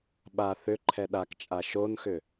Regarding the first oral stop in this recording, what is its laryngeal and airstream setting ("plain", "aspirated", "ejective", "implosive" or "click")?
implosive